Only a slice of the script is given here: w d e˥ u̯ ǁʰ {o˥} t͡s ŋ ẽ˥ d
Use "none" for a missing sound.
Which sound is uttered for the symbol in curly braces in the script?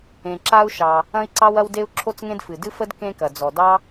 o˥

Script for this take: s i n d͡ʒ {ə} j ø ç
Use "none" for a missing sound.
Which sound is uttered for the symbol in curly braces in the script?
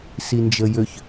ə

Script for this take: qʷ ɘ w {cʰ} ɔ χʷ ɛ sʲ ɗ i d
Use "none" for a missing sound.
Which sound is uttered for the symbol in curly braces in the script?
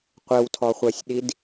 tʰ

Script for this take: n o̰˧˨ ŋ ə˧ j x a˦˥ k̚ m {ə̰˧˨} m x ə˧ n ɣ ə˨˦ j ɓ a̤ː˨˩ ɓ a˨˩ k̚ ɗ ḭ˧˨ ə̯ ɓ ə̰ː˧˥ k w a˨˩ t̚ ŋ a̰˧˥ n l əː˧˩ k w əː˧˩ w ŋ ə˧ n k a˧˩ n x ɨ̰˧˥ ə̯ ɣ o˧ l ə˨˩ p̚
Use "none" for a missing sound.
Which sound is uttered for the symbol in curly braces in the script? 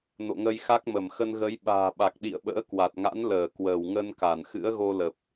ə˧˩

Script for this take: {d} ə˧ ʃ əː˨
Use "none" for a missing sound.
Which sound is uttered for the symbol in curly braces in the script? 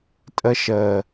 tʼ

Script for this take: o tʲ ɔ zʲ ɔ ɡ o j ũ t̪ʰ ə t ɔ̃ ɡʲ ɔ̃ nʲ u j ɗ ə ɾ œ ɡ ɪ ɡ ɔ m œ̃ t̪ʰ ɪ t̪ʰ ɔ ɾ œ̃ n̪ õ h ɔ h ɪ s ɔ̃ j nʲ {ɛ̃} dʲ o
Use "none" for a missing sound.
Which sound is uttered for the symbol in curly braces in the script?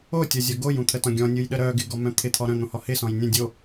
ə̃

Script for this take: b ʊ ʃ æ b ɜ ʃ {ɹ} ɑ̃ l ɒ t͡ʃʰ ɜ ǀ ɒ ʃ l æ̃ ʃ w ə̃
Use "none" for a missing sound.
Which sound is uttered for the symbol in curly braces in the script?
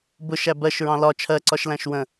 ɹ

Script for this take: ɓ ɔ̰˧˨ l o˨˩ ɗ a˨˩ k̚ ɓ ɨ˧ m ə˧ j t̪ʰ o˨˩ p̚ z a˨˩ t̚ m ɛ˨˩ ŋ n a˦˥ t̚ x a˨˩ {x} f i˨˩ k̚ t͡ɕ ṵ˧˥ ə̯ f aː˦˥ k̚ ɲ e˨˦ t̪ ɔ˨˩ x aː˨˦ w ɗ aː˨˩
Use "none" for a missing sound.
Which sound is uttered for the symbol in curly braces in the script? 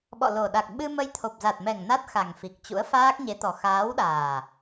ŋ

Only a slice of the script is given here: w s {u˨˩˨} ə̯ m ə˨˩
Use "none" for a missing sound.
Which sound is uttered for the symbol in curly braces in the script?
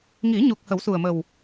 u˨˩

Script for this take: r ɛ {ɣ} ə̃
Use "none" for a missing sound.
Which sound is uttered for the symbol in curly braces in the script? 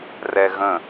ɣ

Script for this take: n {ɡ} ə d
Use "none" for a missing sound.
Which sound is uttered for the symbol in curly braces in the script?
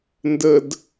d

